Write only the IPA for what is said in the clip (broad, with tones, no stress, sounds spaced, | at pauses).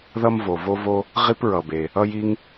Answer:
ð ʌ˥ m v o˩ v o˥ v o˥ | ʁ i˥ p ɹ ʌ˩ b e˩ | ʌ˥ j i˥ ŋ